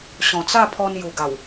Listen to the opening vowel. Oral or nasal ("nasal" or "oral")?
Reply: nasal